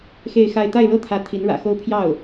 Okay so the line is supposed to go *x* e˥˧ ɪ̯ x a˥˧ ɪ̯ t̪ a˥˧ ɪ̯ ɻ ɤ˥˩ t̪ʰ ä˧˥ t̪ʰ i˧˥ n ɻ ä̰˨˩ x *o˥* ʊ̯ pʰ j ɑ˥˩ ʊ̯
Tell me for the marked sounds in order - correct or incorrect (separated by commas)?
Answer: correct, correct